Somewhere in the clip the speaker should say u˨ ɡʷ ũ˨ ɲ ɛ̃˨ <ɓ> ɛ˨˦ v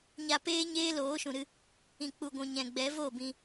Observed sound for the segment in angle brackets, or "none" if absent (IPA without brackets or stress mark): ɡ͡b